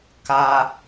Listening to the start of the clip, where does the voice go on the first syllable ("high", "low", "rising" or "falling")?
low